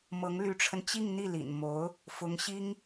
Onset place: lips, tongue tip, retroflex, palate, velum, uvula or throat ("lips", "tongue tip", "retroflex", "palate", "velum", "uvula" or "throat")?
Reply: lips